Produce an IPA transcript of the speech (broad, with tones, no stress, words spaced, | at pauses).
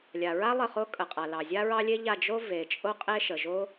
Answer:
lʲa˨ɹa˥ lˠə˥˨χo˥ kʼə˨qʼa˨lɑ˨ zʲa˥ɹɑ˥lʲe˥ ʎa˥˨ d͡ʒo˥ ve˨ t͡ʃʼo˥qʼe˥ʃə˨ʒo˥